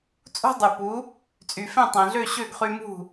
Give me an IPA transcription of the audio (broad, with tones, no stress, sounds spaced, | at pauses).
t͡sʼ ṳ˥ dˤ ʉ˩ p u˩˥ | t͡sʼ y˩ f ẽ˥˩ tˤ ẽ˩ ɮ ø˥˩ ɕ ø˥˩ ɡ χ y˧ m ṳ˥˩